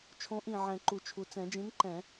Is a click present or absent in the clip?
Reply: present